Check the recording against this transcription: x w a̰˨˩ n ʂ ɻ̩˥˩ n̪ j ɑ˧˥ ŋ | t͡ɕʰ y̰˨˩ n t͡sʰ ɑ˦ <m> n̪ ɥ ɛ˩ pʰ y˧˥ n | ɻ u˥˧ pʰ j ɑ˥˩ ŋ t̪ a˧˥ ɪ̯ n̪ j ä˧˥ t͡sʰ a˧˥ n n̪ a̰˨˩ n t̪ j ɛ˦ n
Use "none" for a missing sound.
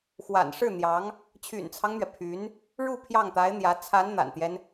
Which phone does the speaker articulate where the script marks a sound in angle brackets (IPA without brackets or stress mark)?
ŋ